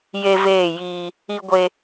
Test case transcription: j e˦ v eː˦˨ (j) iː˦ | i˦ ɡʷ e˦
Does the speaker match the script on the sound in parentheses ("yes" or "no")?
yes